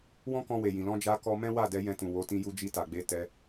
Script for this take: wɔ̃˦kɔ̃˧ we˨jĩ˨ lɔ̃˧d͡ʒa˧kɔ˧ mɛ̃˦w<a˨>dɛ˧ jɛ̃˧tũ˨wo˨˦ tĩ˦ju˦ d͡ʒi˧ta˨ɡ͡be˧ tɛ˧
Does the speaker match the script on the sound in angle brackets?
no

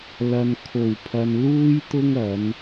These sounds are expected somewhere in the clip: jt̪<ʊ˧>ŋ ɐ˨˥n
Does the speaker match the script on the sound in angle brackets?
no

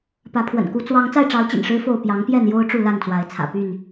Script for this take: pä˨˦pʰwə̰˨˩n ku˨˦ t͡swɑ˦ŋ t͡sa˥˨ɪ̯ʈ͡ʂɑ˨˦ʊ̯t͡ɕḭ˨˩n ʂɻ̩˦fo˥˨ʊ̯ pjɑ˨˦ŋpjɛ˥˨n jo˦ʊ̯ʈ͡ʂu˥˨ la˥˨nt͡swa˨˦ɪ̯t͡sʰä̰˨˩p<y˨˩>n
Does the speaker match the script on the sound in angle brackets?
no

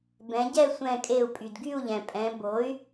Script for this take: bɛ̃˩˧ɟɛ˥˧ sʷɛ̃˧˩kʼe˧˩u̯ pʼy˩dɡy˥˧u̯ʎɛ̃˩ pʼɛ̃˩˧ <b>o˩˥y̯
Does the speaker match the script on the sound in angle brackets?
yes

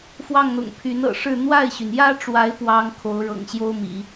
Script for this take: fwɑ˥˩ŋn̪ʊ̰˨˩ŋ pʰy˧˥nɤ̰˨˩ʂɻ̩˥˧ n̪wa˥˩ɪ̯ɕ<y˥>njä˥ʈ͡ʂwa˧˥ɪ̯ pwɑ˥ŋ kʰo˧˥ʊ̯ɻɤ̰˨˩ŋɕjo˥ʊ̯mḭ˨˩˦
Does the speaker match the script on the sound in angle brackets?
no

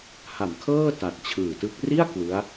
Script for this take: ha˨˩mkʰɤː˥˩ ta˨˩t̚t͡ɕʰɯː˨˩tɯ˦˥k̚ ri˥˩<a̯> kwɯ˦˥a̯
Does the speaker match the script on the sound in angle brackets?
yes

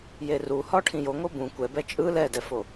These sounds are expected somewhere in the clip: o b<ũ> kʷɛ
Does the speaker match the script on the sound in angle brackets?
yes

